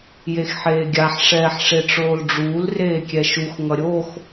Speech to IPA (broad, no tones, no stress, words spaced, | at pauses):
jexħeːɡʲaħ ʂɛːħʂeʈ͡ʂoːlɖ͡ʐuːl reːkʲɛʃux ŋʌɾʲox